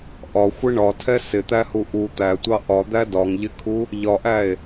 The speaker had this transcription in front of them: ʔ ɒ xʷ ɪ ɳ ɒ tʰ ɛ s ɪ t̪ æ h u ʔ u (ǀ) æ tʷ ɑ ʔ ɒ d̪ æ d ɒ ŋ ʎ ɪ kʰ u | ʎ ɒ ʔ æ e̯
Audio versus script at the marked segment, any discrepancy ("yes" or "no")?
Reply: yes